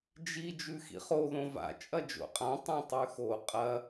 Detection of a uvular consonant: present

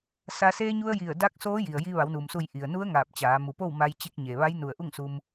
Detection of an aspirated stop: absent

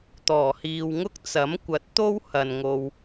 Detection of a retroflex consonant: absent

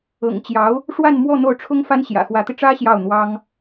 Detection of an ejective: absent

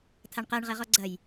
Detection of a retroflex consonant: present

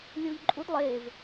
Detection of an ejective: present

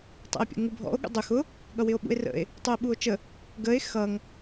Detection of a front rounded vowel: absent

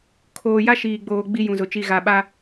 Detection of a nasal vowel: present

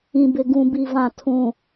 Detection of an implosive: absent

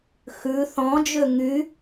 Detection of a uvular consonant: absent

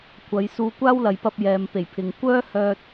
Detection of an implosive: absent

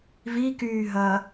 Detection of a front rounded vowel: present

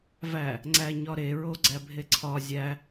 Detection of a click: present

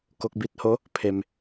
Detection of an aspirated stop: present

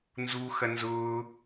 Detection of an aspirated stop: absent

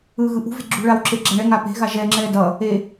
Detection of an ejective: absent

